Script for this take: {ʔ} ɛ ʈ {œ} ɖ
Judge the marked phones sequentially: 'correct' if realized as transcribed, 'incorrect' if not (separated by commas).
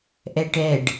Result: correct, incorrect